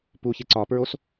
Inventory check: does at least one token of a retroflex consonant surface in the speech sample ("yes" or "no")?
no